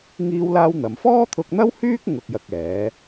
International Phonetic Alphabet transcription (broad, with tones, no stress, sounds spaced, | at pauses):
ŋ iː˥ w l aː˥ w n̪ ɐ˨˧ m f ɔː˥ t̪ʰ ʊ˧ k̚ n̪ ɐ˥ w h yː˥ k̚ ŋ ʊ˧ k̚ j ɐ˧ k̚ ɛː˨˥